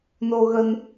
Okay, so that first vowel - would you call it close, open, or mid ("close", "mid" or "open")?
mid